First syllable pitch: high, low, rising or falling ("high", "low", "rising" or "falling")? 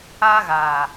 high